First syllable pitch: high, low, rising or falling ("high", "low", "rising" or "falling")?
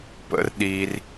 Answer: high